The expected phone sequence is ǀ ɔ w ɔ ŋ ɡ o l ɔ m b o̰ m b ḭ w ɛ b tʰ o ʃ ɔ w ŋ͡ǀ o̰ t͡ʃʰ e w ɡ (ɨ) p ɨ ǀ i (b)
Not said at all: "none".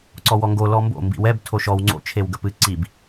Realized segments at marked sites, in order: ə, b

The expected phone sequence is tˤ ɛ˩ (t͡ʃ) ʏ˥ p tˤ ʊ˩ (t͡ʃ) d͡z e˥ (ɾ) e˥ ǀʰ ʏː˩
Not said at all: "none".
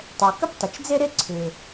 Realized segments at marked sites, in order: k, t͡ʃ, ɾ

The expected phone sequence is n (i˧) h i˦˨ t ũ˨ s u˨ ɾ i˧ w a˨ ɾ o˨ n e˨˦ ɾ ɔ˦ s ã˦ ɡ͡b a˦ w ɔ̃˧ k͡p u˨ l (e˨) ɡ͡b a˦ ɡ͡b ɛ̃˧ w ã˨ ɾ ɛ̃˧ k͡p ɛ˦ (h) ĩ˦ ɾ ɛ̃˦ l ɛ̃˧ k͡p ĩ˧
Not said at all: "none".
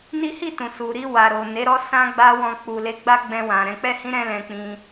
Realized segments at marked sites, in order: i˦, e˧, h

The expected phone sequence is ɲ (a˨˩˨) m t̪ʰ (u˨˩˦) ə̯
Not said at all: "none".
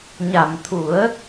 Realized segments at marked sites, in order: a˨˩˨, u˨˩˦

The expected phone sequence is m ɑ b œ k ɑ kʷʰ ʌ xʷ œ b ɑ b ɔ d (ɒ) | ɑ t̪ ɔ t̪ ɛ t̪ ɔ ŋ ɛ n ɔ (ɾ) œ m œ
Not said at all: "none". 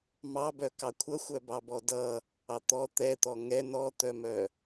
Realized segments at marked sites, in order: ʌ, t̪

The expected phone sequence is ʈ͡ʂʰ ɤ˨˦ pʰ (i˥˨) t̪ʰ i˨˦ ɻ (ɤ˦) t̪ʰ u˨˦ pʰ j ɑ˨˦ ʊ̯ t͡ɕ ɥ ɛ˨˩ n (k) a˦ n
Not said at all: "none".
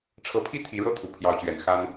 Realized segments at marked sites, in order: i˥˨, ɤ˥˨, x

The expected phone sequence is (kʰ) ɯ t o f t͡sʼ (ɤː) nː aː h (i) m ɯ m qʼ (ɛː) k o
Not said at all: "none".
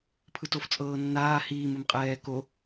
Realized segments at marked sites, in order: pʰ, ɤː, iː, ɛː

